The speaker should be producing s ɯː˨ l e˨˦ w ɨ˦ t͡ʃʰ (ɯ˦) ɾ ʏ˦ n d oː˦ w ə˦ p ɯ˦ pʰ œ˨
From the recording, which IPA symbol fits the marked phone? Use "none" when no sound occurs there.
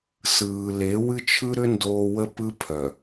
ɯ˦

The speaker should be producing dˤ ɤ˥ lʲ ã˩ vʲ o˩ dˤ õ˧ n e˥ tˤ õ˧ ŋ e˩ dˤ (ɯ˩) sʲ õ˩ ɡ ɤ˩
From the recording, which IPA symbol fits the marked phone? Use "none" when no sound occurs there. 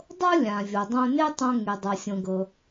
ɤ˩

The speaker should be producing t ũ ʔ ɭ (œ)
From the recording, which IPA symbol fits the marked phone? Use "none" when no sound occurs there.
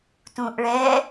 ɛ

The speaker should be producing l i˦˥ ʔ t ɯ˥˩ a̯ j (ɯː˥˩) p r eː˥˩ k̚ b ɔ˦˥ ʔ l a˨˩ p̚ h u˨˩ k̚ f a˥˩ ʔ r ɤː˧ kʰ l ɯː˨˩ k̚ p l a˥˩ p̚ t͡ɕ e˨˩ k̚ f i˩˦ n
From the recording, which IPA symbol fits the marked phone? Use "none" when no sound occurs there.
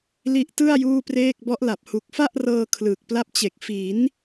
uː˥˩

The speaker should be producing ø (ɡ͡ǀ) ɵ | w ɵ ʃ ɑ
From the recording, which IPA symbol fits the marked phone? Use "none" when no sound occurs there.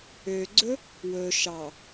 ɡ͡ǀ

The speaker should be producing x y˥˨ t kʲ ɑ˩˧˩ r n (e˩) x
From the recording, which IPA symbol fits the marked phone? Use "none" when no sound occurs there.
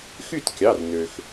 ø˩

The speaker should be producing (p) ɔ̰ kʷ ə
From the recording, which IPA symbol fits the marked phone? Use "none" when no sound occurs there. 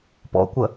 p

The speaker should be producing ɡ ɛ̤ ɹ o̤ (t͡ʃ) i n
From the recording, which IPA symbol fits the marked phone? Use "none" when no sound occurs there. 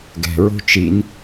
t͡ʃ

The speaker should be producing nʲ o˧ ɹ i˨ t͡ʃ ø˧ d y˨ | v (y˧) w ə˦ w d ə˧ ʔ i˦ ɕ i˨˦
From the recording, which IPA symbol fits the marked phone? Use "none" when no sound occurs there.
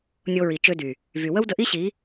y˨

